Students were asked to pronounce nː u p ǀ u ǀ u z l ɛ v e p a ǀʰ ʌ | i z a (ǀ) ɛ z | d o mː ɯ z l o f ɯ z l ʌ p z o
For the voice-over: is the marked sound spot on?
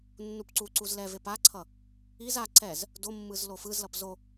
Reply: yes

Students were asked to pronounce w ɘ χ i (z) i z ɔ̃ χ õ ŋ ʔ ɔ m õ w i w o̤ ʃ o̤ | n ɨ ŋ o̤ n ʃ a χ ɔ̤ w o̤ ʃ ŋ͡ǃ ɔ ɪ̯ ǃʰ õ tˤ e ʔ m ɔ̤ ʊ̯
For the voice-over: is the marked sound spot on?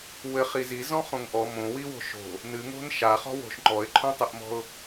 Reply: yes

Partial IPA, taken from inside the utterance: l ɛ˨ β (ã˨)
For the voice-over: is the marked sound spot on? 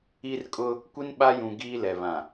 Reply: yes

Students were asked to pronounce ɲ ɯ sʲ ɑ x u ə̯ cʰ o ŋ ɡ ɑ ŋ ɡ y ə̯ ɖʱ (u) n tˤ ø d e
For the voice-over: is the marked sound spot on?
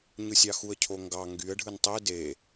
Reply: no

